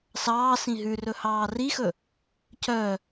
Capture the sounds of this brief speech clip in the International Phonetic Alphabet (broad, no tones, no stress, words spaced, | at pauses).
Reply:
sɑːsĩ ɦʉrɵ hɑːrixɵ | cœ